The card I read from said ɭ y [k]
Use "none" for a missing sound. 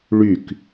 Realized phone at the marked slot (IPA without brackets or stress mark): k